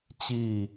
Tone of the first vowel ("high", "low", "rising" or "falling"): falling